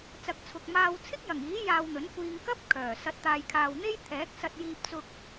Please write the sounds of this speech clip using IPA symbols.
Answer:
t͡s ɐ˨ k̚ t͡sʰ ʊ˨ k̚ m aː˧ w t͡sʰ ɪ˥ k̚ j ɐ˨˩ ŋ iː˨˥ j aː˧ w n̪ ɵ˨˥ n kʷ iː˧ ŋ k ɐ˥ p̚ kʰ œː˨˩ s ɐ˨˥ t̚ t̪ aː˨ j kʰ aː˨ w n̪ e˥ j t̪ʰ ɛː˨˥ k̚ s ɐ˧ t̚ j iː˧ p̚ t͡s ʊ˧ k̚

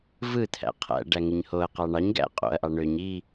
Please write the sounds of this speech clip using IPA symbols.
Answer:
v ɯ t̪ʰ æ̰ qʰ æ̰ ɖ æ ŋ ɯ ɲ h o ɐ̯ q ɑ ɳ ɑ ɲ ɡ æ̰ qʼ o̰ ɐ̯ ʔ ɑ ɳ ø ɲ i

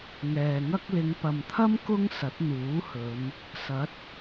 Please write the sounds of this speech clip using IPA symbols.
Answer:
ŋ ɛː˨ ŋ ɐ˥ k̚ l ɪ˨˧ ŋ p ɐ˨ m t̪ʰ ɐ˥ m k ʊ˥ ŋ s ɐ˨˥ t̚ n̪ uː˨˥ h ɵ˨˧ n | s ɐ˨˥ t̚

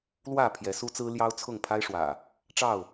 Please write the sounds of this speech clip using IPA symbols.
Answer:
l w ä˥˨ pʰ j ɛ˨˦ s u˦ t͡s ɹ̩˦ l j ɑ˦ ʊ̯ t͡sʰ ʊ˥˨ ŋ pʰ a˦ ɪ̯ ʂ w ä̰˨˩ | ʈ͡ʂ ɑ˥˨ ʊ̯

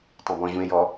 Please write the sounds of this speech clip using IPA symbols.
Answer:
tˤ ẽ b ɔ̃ ʑ ũ e̯ j ɔ

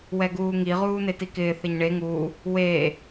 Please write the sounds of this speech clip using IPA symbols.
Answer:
w ɛ ɡ uː ŋ i ʁ uː n e t i k ɪː θ e ɲ ɳ e ŋ uː | w eː

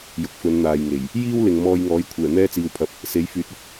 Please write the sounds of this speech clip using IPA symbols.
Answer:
j ʊ˨ k̚ f ɵ˨˧ n n̪ aː˨ j ŋ e˨˩ j | j iː˥ w l ɪ˨ ŋ m ɔː˧ j ŋ ɔː˨˥ j kʷʰ ɛː˨˩ n̪ ɛː˥ t͡s iː˧ w pʰ ɐ˧ p̚ | s e˨˥ j f yː˨˥ t̚ ɐ˨ k̚

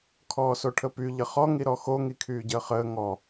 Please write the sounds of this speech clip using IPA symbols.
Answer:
kʰ ɔː s o ʈʰ ə p y ʎ ə χ ɔ ŋ i ɾ ɔ x o ŋ i kʰ yː ɟ əː χ əː ŋ ɔ

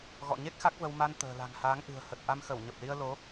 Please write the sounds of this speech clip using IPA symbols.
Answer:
ɣ ɔ̰˧˨ ɲ e˦˥ k̚ x a˦˥ k̚ v ə˧ w m a˧ n t̪ ə̤ː˨˩ l a̤˨˩ ŋ h aː˨˦ ŋ ʔ ɨ̤˨˩ ə̯ h ə˨˩ t̚ ʔ a˧ m x ə˧˩ w ɲ ə˨˩ p̚ l i˧ ə̯ l o˨˦

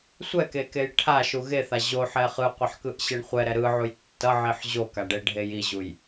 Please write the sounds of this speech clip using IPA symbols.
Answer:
sʷ ɛ k e k e j ʈʰ a ʃ u ɣ e θ a ʑ o ħ ɛ χ ɯ qʷ ɛ ħ k ɯ ʔ ɕ e ɳ χʷ ɛ ɾ ɛ ɾ ɯ ʕ u j tː ʌ ʕ i ħ ʑ o k a ɖ e ɖʱ e j i ʑ u j

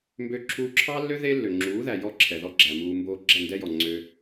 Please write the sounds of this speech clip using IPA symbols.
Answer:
m b ø˧ ǁʰ uː˧ ǁʰ ɑ˦ lː ø˦ ð e˦ lː ø˨ ŋ͡ǁ uː˨˦ ð æ˨ j ɔ˦ ǁʰ ɛ˨ ð ɔ˦ ɡ͡ǁ æ˨ m uː˧ m b oː˦ ɡ͡ǁ ɛ˦˨ n d ɛ˦ j ɔ˨ ŋ͡ǀ ø˦

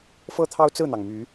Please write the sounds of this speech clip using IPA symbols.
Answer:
f ɤ˦ t̪ʰ ɑ˦ ʊ̯ t͡s ɹ̩˥˨ n̪ ɑ˩ ŋ m y˨˦

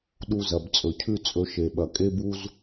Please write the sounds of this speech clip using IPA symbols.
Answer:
ɗ u˧ z ɐ˨ b t͡sʼ ɵ˨ cʰ ʉ˦ t͡sʼ ɵ˧ ʃ e˨ ɓ ɐ˨ kʼ e˦ b u˦ z

